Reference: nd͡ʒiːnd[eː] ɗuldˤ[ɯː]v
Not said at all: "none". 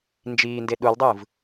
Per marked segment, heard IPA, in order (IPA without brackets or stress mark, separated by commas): e, ɯː